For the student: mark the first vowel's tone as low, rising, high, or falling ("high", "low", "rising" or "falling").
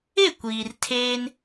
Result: falling